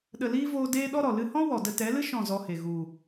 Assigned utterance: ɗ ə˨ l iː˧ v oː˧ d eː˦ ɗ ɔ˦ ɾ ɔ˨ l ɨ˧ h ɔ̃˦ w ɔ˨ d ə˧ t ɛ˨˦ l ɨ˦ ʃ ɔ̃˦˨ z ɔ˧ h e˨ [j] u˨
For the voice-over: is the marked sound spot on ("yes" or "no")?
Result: no